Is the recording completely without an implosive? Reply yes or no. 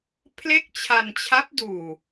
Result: yes